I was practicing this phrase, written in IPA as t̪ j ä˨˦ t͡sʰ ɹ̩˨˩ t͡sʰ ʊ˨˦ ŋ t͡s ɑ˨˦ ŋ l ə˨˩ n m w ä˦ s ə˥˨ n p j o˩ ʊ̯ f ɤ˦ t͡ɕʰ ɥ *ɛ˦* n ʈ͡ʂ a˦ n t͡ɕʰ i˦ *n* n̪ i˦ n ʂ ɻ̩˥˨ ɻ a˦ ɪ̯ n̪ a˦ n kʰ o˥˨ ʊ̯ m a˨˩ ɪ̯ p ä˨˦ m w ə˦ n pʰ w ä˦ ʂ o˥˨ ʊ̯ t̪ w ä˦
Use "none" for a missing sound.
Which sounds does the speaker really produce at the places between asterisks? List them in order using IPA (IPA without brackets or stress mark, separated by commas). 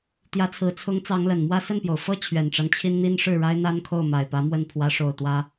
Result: ɛ˨˩, n